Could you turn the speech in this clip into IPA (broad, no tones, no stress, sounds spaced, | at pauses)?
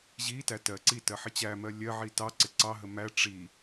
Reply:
ʑ i t æ t ɜ ǀ i t ɜ ħ ɪ t͡ɕ æ m ɜ lʲ ɜ ʕ i t ɑ ǀ ɪ ǀ ɑ ɦ ə m æ ʈ͡ʂ i